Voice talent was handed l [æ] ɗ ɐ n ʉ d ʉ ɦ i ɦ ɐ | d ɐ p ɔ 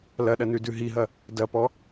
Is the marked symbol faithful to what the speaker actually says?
no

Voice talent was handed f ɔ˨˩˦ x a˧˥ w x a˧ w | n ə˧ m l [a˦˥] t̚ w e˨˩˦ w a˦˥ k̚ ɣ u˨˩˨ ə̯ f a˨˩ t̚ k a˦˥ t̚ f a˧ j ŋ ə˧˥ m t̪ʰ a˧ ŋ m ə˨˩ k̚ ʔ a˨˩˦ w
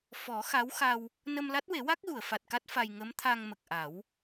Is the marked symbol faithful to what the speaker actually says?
yes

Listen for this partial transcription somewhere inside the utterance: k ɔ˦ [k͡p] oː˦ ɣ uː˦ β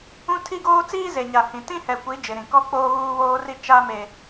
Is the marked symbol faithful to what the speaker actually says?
yes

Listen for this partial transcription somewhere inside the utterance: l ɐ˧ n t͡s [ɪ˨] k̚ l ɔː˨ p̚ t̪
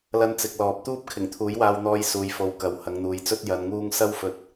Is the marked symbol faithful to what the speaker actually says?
yes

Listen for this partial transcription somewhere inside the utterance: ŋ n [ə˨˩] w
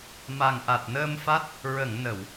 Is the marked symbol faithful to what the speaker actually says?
no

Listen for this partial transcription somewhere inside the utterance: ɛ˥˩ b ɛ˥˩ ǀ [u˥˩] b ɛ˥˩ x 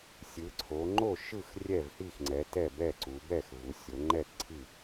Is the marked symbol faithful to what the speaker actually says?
no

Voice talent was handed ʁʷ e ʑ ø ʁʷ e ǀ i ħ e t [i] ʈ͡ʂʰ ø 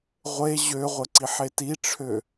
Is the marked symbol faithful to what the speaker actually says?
yes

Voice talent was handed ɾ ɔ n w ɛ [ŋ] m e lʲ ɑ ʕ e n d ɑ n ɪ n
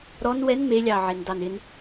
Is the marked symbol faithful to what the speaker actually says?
no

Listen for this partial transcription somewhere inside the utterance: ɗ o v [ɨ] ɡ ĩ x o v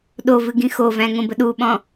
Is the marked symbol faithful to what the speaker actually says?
yes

